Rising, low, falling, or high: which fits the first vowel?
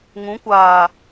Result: rising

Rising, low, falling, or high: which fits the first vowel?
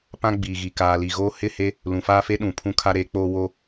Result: high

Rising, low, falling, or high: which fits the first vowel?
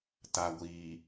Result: low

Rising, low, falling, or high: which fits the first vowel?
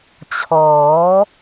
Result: rising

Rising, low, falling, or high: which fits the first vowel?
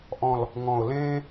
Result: low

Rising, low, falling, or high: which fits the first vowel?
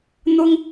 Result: high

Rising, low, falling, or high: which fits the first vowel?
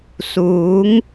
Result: rising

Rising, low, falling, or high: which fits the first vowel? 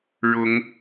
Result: rising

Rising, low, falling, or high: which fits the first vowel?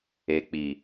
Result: low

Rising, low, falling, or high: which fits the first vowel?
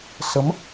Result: rising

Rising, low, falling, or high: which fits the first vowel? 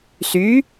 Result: rising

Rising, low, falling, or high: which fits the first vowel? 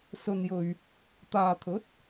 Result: low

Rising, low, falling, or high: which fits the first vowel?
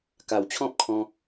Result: low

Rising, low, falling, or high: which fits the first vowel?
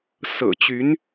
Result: low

